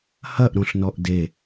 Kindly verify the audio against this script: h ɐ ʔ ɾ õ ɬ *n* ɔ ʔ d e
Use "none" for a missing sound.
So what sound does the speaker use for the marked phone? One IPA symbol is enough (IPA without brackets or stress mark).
n